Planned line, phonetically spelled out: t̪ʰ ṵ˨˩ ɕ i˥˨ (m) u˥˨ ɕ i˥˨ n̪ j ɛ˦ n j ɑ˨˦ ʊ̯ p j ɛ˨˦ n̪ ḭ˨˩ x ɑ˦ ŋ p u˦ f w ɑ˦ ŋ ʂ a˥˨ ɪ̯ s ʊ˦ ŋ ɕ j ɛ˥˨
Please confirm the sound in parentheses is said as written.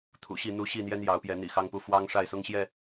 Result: no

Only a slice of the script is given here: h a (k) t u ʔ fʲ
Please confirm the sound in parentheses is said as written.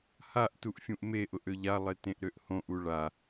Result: no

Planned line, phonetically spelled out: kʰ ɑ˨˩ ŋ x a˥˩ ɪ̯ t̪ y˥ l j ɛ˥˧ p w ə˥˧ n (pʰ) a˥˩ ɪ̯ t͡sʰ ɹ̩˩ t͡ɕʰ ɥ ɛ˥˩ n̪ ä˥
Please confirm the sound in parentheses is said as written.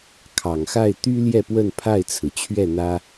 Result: yes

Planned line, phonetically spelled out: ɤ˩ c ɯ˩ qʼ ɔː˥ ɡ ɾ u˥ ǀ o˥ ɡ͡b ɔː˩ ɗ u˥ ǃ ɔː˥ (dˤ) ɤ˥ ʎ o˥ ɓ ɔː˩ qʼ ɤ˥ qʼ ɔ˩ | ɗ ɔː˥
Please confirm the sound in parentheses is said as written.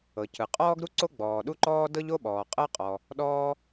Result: no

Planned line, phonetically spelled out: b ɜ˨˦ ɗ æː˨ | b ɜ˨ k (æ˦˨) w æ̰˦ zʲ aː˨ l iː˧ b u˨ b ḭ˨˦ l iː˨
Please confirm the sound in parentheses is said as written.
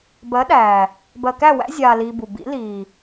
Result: yes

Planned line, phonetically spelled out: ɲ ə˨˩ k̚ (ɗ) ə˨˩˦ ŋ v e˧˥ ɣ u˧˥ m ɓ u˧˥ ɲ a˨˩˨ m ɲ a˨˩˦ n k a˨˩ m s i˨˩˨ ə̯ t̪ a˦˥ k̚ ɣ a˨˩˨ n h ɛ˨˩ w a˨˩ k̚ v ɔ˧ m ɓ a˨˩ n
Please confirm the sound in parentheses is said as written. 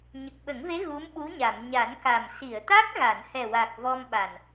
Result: no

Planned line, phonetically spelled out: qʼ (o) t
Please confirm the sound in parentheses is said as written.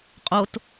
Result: yes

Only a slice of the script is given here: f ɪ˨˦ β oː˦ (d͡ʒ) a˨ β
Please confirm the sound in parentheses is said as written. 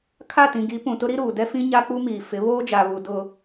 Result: yes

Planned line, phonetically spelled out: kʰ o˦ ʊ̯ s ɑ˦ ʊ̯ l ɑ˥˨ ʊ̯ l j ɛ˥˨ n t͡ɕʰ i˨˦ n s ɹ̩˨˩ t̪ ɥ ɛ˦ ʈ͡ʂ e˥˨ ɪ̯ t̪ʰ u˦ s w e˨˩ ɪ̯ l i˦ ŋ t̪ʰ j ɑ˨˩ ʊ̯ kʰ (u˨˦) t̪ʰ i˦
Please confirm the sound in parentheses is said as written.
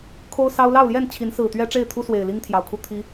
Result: no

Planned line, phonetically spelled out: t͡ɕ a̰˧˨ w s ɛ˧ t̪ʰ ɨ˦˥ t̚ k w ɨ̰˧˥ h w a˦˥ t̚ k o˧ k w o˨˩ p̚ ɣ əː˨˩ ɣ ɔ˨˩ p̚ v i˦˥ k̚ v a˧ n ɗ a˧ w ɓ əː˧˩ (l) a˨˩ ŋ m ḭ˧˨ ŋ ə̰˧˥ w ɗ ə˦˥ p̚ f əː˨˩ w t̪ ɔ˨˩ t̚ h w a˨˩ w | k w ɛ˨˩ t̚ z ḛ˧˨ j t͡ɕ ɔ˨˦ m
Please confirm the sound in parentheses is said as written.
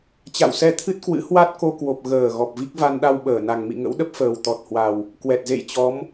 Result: no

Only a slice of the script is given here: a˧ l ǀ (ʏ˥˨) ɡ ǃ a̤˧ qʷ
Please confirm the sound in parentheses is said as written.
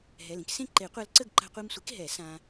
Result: no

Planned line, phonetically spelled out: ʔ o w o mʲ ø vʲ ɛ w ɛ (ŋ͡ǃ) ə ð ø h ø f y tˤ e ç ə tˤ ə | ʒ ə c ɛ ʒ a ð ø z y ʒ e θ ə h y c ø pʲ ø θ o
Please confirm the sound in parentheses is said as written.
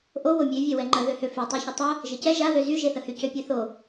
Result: yes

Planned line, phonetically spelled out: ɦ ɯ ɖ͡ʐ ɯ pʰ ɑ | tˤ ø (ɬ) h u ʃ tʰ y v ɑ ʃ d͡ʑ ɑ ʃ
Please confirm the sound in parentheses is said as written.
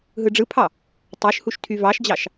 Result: no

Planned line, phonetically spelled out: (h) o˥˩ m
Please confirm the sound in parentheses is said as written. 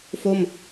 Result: no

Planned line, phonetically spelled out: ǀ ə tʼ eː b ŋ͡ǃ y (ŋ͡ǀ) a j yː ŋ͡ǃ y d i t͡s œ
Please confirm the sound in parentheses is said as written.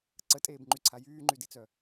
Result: no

